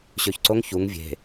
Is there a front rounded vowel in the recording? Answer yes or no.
yes